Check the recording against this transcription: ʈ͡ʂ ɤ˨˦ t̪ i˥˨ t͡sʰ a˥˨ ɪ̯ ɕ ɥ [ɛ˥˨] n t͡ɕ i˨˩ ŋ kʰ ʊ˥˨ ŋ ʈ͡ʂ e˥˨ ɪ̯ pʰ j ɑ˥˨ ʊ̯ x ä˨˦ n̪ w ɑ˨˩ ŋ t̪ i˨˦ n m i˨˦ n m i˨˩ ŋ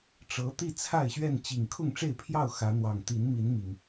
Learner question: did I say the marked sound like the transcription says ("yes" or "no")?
yes